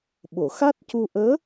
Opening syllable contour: low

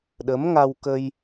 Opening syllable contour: rising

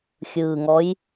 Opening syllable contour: low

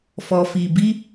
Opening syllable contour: low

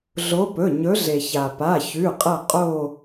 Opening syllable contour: rising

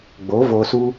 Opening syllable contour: rising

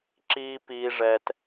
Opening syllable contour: low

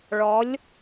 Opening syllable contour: rising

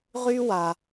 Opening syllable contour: high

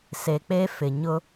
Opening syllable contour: low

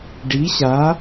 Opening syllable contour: rising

